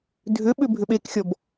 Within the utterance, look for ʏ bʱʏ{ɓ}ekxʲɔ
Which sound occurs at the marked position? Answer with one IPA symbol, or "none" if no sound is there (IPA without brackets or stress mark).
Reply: ɓ